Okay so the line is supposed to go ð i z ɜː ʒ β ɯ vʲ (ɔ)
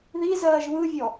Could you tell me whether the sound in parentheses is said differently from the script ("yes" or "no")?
no